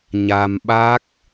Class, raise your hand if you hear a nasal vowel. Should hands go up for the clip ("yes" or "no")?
no